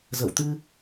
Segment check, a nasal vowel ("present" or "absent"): absent